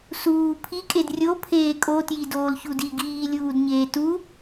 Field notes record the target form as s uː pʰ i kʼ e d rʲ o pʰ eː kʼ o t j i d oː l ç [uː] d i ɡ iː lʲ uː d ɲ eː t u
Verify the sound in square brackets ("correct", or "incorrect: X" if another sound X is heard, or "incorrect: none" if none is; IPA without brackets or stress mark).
incorrect: u